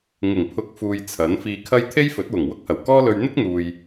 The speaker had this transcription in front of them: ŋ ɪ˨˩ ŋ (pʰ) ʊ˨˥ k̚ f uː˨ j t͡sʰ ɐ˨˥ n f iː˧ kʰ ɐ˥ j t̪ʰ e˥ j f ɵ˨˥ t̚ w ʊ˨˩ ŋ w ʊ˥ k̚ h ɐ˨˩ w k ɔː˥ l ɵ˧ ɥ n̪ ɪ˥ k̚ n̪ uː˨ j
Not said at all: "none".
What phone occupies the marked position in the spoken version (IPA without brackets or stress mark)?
pʰ